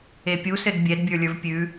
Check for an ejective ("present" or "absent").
absent